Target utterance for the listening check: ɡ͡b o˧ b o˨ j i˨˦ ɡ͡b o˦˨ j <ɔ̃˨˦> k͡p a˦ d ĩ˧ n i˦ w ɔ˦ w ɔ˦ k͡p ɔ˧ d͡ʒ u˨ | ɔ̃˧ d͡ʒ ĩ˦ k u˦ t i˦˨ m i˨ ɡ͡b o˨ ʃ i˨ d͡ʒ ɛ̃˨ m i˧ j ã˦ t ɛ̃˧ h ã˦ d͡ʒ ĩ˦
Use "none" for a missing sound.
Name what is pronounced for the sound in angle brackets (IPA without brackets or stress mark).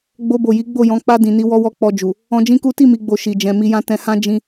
ɔ̃˨˦